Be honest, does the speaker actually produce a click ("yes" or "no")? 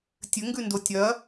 no